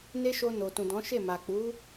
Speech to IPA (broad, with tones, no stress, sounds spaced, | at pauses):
n e˦ ʃ o˧ n o˨ t ũ˨ d ɔ̃˨˦ ʃ e˦˨ m a˨ k͡p u˨˦